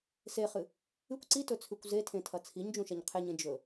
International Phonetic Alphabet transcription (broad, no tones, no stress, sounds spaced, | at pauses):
s e χ ɨ | ɨ kʷ ǀ i t ɵ t͡sʰ ʉ kʷ z e tʰ ẽ tʰ ɐ t͡sʰ i ɲ d͡ʒ ũ ʃ ɐ ɲ qʰ e ɲ ẽ d͡ʒ ɵ